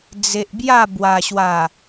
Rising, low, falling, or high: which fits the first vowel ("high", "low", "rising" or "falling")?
low